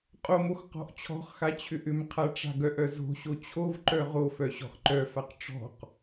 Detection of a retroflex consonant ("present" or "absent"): present